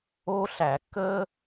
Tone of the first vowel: high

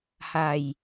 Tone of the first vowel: low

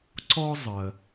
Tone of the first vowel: high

